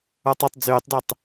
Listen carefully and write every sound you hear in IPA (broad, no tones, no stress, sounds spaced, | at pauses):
ə˞ tˤ o tˤ d͡z yː tˤ d y tˤ